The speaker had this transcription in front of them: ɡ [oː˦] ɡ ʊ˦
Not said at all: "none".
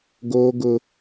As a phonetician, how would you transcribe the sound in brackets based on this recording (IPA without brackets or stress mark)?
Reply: oː˦